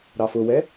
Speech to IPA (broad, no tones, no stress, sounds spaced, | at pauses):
ɾ ɑ f ʊ w ɛ